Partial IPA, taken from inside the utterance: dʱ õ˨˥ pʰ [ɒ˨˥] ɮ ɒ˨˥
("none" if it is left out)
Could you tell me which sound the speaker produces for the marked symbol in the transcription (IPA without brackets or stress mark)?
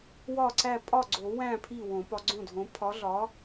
ɒ˨˥